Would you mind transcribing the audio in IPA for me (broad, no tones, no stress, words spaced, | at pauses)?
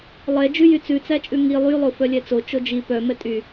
lˠɛ d͡ʒʉjyt͡sʉ t͡sæt͡ʃʼʉŋi lˠy lˠofœlʲɛt͡so t͡ʃod͡ʒi pœ mɛtʼy